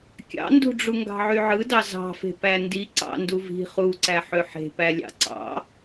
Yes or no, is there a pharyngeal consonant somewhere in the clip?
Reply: yes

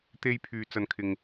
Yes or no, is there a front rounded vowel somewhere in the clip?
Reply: yes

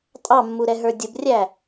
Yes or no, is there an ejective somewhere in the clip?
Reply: yes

